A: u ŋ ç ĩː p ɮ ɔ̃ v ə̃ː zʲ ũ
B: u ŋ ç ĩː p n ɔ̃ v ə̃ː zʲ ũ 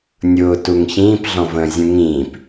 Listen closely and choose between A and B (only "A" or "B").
A